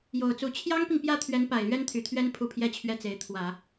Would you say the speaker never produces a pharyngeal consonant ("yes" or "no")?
yes